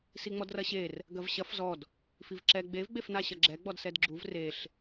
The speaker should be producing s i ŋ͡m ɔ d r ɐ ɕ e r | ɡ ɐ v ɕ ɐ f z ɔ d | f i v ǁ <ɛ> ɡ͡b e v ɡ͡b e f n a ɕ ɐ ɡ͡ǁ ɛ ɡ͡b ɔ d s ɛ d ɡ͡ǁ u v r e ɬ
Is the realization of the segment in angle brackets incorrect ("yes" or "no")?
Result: no